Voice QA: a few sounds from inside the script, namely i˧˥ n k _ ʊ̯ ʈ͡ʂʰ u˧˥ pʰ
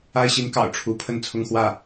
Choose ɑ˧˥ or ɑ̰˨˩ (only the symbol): ɑ̰˨˩